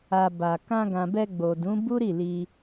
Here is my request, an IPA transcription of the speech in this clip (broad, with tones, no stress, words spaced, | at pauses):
a˨ ba˨ kã˧ɡã˨bɛ˧ ɡ͡bo˨dũ˨˦ bu˦ɾi˦˨li˧